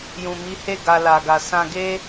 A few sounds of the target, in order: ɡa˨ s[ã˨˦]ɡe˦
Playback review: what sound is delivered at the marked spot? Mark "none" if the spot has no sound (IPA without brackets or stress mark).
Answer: ã˧